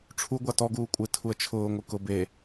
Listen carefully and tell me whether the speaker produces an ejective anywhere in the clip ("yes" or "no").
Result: yes